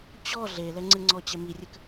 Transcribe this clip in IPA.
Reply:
t͡ɕɔ ɮelɛŋ͡ǀɨŋ͡ǀɔ t͡ɕɛmirʲɨk

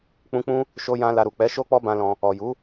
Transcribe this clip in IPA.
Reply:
k͡pũ˧k͡pũ˦ | ʃo˧jã˧ la˧ ɾu˨k͡pɛ˨˦ ʃo˦k͡pɔ˦bã˧lɔ̃˧ | ɔ˨ju˨˦

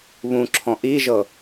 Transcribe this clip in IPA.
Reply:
βũǁʰɔ̃ ʔiʒɤ

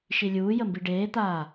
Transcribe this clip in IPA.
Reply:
ʃilʲuːjəmbi ɖeːt̪aː

